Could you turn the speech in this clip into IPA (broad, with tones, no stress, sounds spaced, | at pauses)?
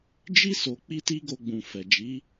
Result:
d͡ʒ i˦ s o˧ k͡p i˦ t i˦ ɡ o˧ ɡ͡b ũ˨ f ɛ˨ d͡ʒ i˨˦